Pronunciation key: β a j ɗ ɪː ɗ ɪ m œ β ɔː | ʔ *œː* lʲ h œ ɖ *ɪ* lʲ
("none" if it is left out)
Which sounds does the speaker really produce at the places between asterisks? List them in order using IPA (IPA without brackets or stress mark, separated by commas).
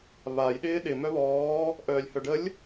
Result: œː, ə